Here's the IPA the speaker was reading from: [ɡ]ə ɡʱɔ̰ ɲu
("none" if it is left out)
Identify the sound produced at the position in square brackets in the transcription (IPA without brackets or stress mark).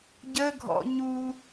ɟ